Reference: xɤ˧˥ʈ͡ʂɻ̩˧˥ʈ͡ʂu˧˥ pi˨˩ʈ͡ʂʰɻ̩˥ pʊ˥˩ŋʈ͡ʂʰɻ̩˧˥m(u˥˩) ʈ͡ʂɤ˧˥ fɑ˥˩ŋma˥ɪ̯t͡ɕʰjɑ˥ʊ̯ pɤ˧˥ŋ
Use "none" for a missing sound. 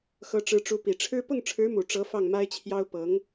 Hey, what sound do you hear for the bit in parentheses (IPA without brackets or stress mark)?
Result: u˨˩